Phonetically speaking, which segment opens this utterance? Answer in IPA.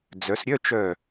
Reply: d͡z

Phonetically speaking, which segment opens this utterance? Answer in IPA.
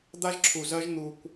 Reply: d̪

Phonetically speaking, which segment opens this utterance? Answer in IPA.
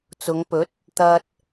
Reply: t͡s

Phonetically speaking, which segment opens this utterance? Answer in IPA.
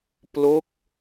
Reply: p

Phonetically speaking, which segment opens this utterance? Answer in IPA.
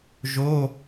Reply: ʒ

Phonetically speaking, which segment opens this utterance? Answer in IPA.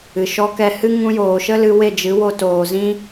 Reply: ɨ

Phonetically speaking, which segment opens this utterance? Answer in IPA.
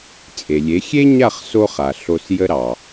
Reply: t͡sʼ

